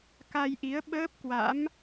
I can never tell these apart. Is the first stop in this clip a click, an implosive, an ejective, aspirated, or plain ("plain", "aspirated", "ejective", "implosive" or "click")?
plain